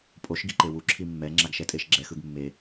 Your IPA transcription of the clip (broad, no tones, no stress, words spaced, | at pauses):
pʼoʃ ɡiǃewu ǁʰimːɛ ŋ͡ǁaɡʃɛtʼeʃɡ͡ǁɛ xɯɡmːe